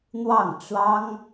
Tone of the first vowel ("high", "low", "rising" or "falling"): falling